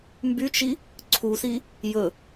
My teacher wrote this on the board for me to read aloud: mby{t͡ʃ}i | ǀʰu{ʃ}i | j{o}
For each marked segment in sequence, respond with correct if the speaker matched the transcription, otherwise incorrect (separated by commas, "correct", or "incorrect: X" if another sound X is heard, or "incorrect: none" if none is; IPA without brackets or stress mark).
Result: correct, incorrect: s, incorrect: ɵ